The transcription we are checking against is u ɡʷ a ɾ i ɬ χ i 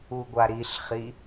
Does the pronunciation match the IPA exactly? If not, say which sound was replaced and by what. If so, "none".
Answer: none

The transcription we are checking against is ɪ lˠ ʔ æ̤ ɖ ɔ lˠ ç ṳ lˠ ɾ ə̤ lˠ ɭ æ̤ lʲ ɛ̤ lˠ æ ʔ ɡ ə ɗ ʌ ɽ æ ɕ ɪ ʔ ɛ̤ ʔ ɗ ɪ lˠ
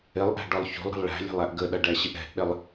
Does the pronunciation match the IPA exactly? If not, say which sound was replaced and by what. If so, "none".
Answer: ɽ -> ɖ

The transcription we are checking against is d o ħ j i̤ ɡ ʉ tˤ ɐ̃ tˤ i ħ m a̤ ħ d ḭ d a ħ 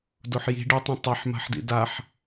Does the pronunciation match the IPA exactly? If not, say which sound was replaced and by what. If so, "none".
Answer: ɡ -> ɖ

